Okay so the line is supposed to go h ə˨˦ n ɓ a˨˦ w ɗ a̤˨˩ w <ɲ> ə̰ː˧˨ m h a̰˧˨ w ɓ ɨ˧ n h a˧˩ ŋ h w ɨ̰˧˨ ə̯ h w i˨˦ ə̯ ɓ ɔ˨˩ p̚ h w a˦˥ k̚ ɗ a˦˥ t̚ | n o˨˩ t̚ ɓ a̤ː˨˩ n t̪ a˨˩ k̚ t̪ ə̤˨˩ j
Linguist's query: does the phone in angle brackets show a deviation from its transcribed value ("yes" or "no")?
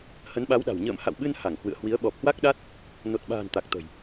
no